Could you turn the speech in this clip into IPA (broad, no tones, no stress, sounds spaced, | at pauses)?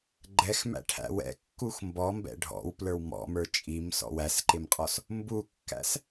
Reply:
ɡ͡ǃ ɛ x m æ̰ ʈʰ æ̰ w ɛ̰ kː u x m b ɔ m b ɛ̰ ɖʱ ɔ̰ w p l ə˞ w m ɔ̰ m ə˞ t͡ʃʼ i m s ɔ̰ w æ s ǃ ɪ m qʼ ɔ s | m b u kː æ̰ s